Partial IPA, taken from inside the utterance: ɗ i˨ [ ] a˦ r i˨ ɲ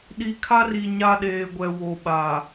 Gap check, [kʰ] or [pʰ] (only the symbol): kʰ